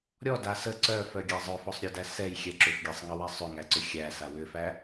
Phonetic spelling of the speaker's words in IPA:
ɾʲ ɔ d a s ə ǀ œ f œ ɡʲ a zˤ œ f ɔ sˤ ɾʲ œ d æ s ɛ j xʲ ɛ ǁ ʏ f ɡʲ æ sˤ ŋ ə w ɛ sˤ ʏ ŋ æ ǀ ʏ xʲ æ s a w ʏ f æ

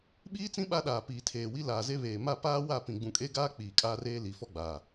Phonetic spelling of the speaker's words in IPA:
ɓ iː˦ t͡s ĩ˦ ɓ a˦ ɗ aː˨ p iː˨ tʰ eː˨ w i˦ l aː˨ z e˦ β eː˨ m a˦˨ p aː˦ w a˦˨ p ĩ˨ ɡ͡b ũ˨ kʼ e˦ ɡ aː˦ k͡p iː˨ kʼ aː˦ r eː˦ l i˨˦ f ɔ˦ ɡ͡b aː˨

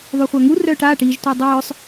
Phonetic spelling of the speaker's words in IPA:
ðˤ y χʷ a ŋ u r œː ʈ aː ʈ i ʒ tʷ ɛ dˤ œː sˤ

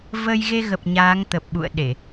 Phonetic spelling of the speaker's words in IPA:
v ə˧ j ɣ e˧ ɣ ə˨˩ p̚ ɲ aː˨˦ ŋ t̪ ə˨˩ p̚ ɓ ṵ˧˨ ə̯ ɗ e˧˩˨

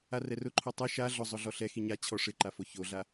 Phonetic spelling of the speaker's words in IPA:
a r ɛ r ʊ ǃʰ o tˤ e ʃ a ɮ ʊ zˤ ʊ ɮ ɔ ɬ ɛ x i ɲ a t͡ɕʰ ɔ ʂ ɪ ǃ a f o ç o ɮ a

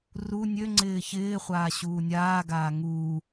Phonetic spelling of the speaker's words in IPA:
r u nʲ ø ŋ͡ǀ ɪː ç ɪː χʷ aː ɕ uː nʲ aː ɡ aː ŋ uː

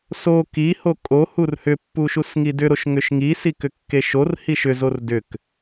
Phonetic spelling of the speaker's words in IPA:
s o k i h o kʼ o h u r h ʏ pː u ʃ u s ŋ i d ʏ ɾ o ʃ ŋ ʏ ʃ ŋ i s i k ʏ kː e ʃ o r h i ʃ ʏ z o r d ʏ k

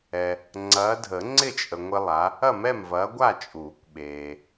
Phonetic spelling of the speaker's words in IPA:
ɛ˨ | ŋ͡ǀ ɐː˨˦ dʱ ə˨˩˦ ŋ͡ǀ ɪ˥˨ t͡ʃʼ ə˨ ŋʷ ɪ˦ lˠ a˨˦ | ɐ˥˨ m ɛ˥˨ m v ɐː˨˦ ɡʷ a˥˨ t͡ʃʼ uː˨˩˦ kʷ ɓ eː˨

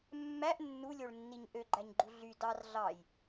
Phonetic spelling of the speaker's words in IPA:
mː æ ʔ nː u lʲ o ɭ nː i ɲ ʔ ø ɡ͡ǃ æ ɲ ɡ͡ǃ u ɮ y d ɑ r ɮ ɑ j

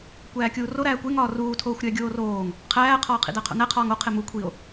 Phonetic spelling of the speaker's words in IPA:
kʷ æː kʲ uː r o ɾ æː kʷ e ŋ ɒː r uː tʰ oː xʷ ɾʲ æ ɡʲ oː r oː ŋ | qʰ æː qʰ ɒː qʰ ḭ d æ qʰ o̰ n æ qʰ ɒː ŋ o qʰ e m u kʷʰ i o̯

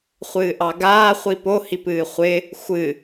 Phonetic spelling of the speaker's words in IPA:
χʷ ɨː ʔ ɑ ɡ aː χʷ i p o h i p ɨː χʷ ɪ | xʷ ɨ

